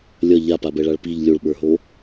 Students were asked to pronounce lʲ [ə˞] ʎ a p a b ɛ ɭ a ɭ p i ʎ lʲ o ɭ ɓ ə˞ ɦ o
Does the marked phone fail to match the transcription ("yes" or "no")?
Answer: yes